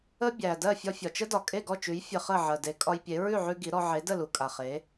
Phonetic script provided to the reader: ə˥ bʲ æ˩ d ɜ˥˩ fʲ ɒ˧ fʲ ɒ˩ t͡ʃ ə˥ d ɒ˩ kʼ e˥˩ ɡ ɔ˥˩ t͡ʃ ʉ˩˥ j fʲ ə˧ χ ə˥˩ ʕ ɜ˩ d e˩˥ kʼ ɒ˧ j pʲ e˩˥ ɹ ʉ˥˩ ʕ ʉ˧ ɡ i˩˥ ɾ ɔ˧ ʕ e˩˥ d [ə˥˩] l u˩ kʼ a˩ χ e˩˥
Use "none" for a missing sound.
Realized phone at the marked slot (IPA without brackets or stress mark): ə˥˩